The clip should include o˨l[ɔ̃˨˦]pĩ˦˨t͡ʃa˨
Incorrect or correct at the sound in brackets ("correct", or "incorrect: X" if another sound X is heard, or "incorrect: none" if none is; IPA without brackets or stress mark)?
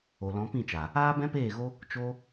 correct